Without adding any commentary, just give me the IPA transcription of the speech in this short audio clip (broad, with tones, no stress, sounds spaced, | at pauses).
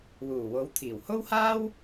w uː˨˩ w o˨˥ w t̪ʰ iː˨˩ w h o˥ w h aː˥ w